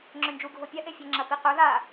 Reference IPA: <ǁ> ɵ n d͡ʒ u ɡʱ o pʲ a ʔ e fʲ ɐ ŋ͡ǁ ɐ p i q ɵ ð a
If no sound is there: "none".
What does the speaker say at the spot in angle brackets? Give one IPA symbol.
ŋ͡ǁ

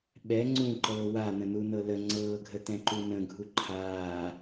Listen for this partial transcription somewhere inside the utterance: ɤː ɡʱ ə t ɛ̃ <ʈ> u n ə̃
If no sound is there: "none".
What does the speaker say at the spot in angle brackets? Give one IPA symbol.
ǃ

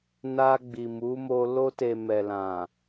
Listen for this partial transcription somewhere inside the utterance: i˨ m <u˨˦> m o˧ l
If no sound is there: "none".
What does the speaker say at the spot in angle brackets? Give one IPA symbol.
u˨˦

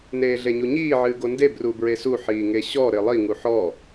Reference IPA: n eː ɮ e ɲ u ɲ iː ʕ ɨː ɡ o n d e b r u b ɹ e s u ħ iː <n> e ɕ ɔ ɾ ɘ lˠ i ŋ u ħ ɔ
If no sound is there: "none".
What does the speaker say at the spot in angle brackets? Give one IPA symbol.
ŋ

